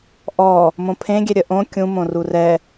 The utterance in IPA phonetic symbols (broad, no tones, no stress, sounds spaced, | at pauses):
ʔ ɔ | m õ pʰ ẽ ɡʲ ɛ ɾʲ ə ʔ õ kʲ ũ m õ r u r ɛ